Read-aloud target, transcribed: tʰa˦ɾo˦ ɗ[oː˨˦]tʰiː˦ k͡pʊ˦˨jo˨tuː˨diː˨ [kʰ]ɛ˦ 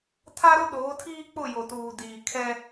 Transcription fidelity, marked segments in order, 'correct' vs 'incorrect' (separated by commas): correct, correct